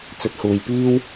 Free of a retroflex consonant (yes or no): yes